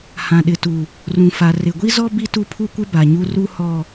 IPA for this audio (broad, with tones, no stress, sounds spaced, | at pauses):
h ã˨ ɗ ɪ˨ t u˨ | r ũ˨ f a˨ r ɪ˨ ɡʷ i˦ z ɔ˦ b i˦ t u˦ pʰ u˦ kʷ ɪ˦ b a˨ ɲ u˦ r u˦ h ɔ˦